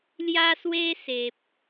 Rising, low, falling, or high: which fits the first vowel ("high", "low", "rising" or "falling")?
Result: high